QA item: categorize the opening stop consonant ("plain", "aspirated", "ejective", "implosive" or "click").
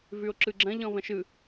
click